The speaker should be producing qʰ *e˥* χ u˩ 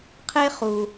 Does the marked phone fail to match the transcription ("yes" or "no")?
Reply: no